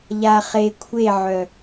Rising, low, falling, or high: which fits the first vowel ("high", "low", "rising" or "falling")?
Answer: low